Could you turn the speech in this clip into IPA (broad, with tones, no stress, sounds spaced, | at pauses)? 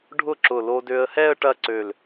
ɖʱ ʊ˥˧ ǁ ʊ˧˩ l o˧ d ø˧ ə̯ h ɛ˥˧ ə̯ ʈ ɐ˥˧ ǀ ø˧˩ l